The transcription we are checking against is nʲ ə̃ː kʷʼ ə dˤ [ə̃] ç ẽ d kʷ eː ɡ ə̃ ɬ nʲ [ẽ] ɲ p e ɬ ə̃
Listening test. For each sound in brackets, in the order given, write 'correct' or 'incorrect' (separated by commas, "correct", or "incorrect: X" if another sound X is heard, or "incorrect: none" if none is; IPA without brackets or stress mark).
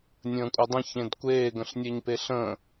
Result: correct, incorrect: e